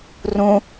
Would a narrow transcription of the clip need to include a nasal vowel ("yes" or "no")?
yes